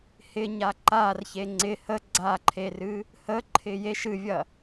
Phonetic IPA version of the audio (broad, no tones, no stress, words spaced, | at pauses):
hɪɲa ǃarçe ŋ͡ǀɪ hə ɡ͡ǀaǃʰerɨ | həǃʰɪ jeʃ ɨvʲɐ